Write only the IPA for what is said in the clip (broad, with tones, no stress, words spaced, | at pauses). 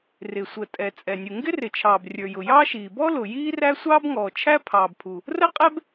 rɪ˩sʷə˩tʼɛ˩ t͡sʼɛ˩nʲu˩ ŋɡɪ˥rɪ˩t͡ʃʰɑː˩b rʲə˞˩jʊ˩jɑː˥ʃiː˩ bɔ˥lʊ˩ jiː˥ræ˥ sʷɑː˥bŋɔː˩t͡ʃʰæ˥ pʰɑː˩bpʰu˩ | rə˥qʼɛ˥b